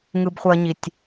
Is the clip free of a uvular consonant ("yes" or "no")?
no